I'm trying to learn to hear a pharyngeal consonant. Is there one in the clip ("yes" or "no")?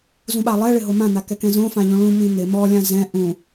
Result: no